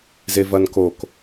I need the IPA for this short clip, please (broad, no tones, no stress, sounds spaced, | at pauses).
z e v ɐ n k o k